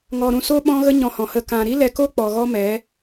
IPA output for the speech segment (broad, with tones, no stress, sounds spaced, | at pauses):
ŋ ɔ˨ ɾ ũ˨ s o˦ ɓ ɔ̃˦ ɣ ə˦ ɲ ɔ̃˧ h ɔ̃˨ h ə˧ k ã˨ ɾ i˦ l ɛ˧ k o˦ k͡p ɔ˨ ɣ ɔ˦ m ɛ˨˦